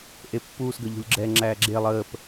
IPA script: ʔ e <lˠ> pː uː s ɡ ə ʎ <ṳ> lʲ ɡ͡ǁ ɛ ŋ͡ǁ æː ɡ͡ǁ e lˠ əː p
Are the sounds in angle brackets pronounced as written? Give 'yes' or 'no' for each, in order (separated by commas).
no, yes